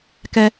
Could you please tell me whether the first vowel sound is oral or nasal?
oral